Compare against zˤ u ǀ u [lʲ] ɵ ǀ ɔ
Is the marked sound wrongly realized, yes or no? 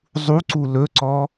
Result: yes